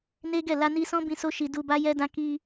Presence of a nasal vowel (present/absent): present